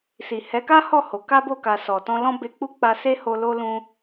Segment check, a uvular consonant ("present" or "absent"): absent